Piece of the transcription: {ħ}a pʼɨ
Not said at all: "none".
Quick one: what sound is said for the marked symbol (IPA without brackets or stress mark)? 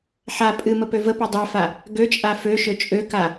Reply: ħ